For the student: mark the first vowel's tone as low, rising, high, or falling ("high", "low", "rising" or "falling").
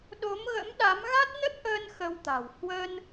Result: rising